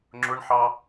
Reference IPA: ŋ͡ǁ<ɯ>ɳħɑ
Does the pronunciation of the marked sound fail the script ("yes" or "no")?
yes